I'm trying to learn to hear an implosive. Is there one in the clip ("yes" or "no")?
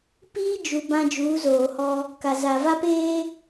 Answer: no